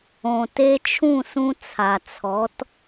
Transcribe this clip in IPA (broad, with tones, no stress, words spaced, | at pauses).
õ˩te˧t͡ʃʰũ˥˩sũ˧ t͡sʰa˩t͡sʰɔ˩˥t